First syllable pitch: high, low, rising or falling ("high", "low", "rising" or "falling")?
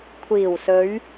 low